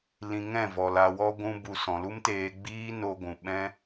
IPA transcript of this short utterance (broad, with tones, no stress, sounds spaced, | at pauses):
l ĩ˨ ŋ ɛ̃˦˨ v ɔ˨ l a˨ w ɔ˧ ɡʷ ũ˧ b u˨ s ɔ̃˨ l u˦ m t eː˧ ɡ͡b iː˦ n o˧ ɡʷ ũ˨ ɓ ɛ̃˦